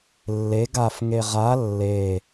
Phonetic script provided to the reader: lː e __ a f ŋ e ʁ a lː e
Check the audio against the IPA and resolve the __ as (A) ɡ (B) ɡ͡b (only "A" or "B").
A